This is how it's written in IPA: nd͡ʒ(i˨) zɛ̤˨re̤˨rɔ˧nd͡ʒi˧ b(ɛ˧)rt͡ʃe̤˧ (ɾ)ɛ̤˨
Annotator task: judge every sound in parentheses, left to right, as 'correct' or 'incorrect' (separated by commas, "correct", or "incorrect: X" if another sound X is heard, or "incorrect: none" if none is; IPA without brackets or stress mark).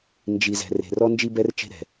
correct, correct, correct